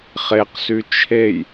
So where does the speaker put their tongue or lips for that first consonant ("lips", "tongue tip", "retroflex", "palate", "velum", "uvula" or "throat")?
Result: uvula